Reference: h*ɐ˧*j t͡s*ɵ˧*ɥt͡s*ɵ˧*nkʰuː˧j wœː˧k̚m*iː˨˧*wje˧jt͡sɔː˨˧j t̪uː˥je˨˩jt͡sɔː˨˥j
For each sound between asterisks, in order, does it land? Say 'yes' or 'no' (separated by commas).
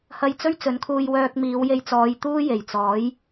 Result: yes, no, no, yes